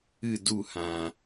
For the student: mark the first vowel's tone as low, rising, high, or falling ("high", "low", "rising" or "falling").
falling